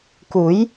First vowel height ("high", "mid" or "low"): high